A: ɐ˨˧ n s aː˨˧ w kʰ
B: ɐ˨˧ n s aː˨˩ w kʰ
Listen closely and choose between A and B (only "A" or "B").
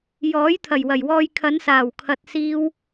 B